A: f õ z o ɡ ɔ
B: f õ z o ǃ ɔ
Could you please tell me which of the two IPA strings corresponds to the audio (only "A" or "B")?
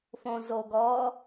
A